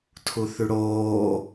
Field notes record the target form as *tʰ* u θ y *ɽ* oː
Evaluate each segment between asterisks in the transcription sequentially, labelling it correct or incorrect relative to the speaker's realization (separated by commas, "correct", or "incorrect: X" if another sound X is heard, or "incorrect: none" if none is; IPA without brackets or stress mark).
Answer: correct, correct